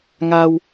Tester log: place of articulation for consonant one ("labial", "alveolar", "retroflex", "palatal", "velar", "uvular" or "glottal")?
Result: velar